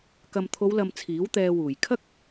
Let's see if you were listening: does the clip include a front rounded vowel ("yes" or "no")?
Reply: no